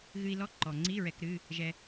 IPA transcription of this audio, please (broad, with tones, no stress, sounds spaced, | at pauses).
ɣ ɨ˧ i̯ l ɔ˧˥˧ ǃ ɔ˩ ŋ͡ǀ i˧˥˧ ɹ ɛ˧ k ɾ ɨ˧˥˧ | ʒ ɛ˧